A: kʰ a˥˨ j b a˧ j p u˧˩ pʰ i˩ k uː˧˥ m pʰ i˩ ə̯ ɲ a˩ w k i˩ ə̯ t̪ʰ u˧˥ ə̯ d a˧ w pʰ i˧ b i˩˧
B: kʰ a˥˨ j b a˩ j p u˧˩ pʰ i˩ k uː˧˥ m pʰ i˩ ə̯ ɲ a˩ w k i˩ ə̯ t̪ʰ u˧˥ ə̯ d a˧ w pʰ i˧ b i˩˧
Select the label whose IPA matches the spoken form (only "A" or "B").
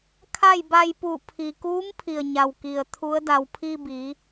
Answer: A